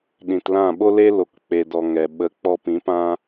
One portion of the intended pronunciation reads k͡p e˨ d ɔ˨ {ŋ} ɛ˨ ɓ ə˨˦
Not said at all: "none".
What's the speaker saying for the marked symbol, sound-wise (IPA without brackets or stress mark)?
ŋ